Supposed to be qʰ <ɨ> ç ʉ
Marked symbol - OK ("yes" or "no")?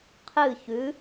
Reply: yes